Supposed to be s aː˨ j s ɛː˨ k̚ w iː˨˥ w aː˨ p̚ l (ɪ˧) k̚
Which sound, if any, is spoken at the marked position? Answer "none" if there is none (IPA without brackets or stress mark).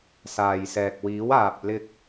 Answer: ɪ˧